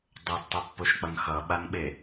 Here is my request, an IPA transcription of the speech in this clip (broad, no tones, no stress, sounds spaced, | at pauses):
dˤ o d tˤ ɯ pː o ʃ k͡p ʌ n x ʌ ɓ a n ɓ e